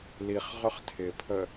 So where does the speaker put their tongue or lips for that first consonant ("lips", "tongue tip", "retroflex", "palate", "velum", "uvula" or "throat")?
tongue tip